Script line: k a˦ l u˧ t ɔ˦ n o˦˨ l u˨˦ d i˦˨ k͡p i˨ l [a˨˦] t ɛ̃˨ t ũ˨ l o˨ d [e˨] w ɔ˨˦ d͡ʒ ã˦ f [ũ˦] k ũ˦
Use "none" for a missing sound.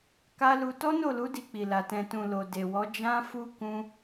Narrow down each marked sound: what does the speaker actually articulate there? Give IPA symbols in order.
a˨, e˨, u˦

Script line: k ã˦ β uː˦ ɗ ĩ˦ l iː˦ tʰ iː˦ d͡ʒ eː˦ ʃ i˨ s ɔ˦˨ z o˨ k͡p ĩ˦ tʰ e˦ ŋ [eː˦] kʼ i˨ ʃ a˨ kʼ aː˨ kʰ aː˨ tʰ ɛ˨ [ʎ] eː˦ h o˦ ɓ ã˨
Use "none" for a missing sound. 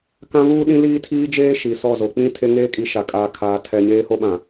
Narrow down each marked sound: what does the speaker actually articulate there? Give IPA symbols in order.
eː˦, ɲ

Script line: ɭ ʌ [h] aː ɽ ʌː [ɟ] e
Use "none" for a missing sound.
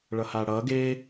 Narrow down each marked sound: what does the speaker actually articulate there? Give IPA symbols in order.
h, ɡ

